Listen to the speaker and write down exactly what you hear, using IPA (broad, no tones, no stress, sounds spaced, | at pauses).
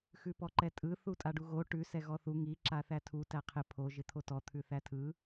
x ʉ p ɔ ǃ ɛ tʼ ɯ θ u tʼ a ɖ u ɣ o ʈ ʉ s ɛ ɣ ɔ θ u ŋ i ǁ a θ æ tʰ u t æ qʰ ɪ pʰ o ʒ ɪ t̪ʰ o t ɔ t̪ʰ ʉ θ æ tʰ ɯ